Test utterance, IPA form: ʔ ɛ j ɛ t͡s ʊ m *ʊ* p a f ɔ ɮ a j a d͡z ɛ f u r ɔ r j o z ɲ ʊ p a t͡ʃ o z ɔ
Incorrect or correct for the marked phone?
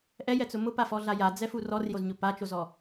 correct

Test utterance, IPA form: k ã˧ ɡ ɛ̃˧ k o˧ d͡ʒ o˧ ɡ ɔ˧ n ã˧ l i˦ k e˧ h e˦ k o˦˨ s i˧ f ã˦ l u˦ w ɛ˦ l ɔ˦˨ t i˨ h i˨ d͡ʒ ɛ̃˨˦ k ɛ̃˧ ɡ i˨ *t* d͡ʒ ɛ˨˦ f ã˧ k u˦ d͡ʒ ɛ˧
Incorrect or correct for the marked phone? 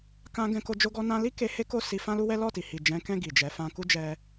incorrect: none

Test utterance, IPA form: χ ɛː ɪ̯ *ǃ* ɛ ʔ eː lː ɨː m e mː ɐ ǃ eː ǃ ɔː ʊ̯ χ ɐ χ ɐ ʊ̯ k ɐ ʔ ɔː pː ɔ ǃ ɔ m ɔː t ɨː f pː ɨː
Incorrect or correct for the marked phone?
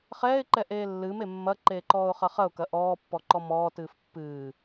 correct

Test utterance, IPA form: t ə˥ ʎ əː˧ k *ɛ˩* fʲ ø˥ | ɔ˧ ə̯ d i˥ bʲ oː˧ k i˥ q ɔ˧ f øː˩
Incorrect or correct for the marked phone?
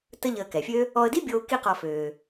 correct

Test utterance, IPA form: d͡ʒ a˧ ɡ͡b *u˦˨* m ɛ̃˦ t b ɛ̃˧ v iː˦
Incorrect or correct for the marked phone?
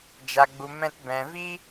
incorrect: u˧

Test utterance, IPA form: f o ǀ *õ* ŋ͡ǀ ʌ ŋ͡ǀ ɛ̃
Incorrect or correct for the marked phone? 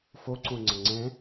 correct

